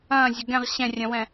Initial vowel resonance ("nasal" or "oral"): nasal